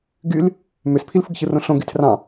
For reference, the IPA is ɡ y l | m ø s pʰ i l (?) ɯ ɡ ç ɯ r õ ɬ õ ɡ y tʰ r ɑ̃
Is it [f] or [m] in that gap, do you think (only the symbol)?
f